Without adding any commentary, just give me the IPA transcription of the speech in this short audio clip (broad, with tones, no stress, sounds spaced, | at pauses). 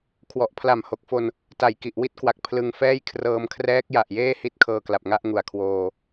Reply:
kʰ w ɔ˨˩ ʔ pʰ l a˨˩ m h o˨˩ k̚ f o˧ n | t a˨˩ j k i˨˩ ʔ w i˥˩ t̚ k w a˨˩ k̚ pʰ l ɯ˧ ŋ f ɛː˥˩ j kʰ r ɤː˧ m kʰ r ɛː˦˥ k̚ j a˨˩ ʔ j eː˥˩ h i˦˥ t̚ kʰ ɤː˧ k l a˨˩ p̚ ŋ a˥˩ ʔ ŋ u˨˩ a̯ kʰ w oː˧